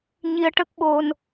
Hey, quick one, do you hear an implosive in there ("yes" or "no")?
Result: yes